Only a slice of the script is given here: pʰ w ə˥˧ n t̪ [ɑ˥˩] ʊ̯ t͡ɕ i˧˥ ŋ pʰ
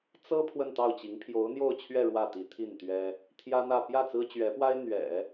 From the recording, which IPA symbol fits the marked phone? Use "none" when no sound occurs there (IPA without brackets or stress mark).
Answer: ɑ˥˩